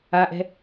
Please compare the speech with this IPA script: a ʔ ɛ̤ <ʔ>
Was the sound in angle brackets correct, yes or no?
no